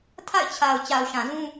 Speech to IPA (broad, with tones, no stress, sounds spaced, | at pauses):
tʰ a̰˦˨ ɪ̯ t͡ɕʰ a˨ ʊ̯ t͡ɕ a˨ ʊ̯ ʃ ã˨ z ũ˦